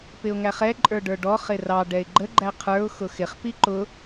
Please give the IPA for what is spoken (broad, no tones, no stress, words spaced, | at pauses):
pɪʊ̯ŋæχɛ ǃʼə˞ɖə˞ɖɔ χɪrɑ ɖɛɪ̯ɡ͡ǃə ɡ͡ǃæqʰə˞ʊ̯ xʊxɪχ piǃʊ